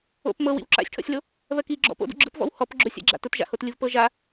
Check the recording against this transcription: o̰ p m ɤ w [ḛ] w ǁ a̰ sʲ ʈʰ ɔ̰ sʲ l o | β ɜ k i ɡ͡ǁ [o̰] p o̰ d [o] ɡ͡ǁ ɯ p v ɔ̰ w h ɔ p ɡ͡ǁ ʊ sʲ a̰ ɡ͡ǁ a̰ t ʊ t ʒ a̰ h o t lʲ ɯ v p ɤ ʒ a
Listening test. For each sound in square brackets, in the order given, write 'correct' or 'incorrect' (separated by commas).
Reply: incorrect, incorrect, incorrect